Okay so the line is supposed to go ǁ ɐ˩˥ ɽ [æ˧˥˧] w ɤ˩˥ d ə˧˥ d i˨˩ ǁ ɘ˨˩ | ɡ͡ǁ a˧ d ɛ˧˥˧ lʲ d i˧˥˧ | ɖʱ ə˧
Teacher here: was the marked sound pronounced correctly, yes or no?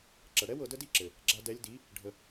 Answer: no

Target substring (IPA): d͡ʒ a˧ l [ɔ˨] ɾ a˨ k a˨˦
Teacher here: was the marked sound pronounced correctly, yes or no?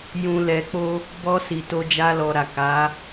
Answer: yes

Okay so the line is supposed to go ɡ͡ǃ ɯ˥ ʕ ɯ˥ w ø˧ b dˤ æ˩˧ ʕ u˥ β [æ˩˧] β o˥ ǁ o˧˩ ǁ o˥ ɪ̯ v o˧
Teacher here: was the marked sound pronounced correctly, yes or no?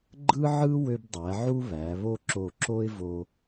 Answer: yes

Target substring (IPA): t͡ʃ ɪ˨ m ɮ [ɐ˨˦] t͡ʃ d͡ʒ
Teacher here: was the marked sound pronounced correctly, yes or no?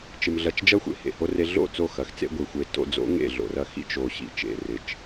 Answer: no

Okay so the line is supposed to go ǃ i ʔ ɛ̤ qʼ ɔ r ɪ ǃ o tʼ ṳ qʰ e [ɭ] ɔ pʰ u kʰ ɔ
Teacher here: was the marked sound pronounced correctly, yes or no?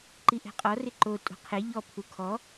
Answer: no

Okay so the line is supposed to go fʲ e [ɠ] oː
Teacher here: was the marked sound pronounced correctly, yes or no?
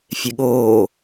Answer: yes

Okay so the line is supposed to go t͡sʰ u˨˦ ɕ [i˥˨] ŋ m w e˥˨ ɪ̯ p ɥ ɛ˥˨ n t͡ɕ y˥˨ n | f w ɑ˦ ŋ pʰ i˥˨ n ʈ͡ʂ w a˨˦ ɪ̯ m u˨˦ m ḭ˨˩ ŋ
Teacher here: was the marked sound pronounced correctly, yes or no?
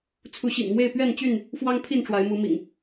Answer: no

